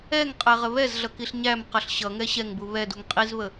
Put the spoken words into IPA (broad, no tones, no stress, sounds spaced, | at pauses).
ɛ ŋ qʼ ɛ ʁ ə β ɛ z ɮ ʌ k i ɬ ɲ æ m q ʌ ɬ ɕ ʌ ŋ ɛ ɕ ɛ ŋ b u β ɛ d u ŋ qʼ i z β ə